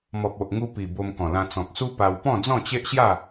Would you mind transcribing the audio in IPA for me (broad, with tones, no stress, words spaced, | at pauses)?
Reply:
mɔ˨p̚o˨ʔŋu˧ pi˨˩ bo˧mkɔ̃˨˩lã˧ t͡sɔ̃˨k̚su˦ pa˧w pɔ̃˥˧d͡zɔ̃˥˧t͡ɕe˦ʔɕja˥˧